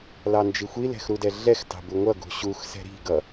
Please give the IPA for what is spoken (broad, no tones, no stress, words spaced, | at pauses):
lɑnd͡ʒixʷi lɛ̤xɾudɛɮɛx tɑ̤buŋʷʌ ɡṳɕux sɛ̤ɾi̤ɡʌ